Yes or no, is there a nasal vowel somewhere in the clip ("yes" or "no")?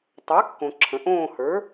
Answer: yes